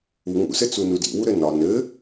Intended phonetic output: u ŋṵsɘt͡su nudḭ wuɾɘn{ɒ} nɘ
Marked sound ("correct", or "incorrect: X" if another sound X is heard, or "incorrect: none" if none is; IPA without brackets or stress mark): correct